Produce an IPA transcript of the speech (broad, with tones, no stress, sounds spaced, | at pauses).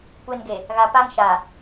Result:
kʷ e˨ n ɡ e˨ | ɣ a˨ p a˦ ŋ ʃ a˨